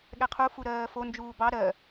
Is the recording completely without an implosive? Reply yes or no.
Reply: no